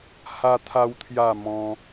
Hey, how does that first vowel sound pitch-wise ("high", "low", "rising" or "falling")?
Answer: high